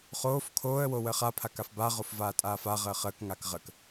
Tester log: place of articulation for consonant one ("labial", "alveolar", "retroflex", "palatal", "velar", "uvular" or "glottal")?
uvular